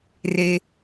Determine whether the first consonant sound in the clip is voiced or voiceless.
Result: voiced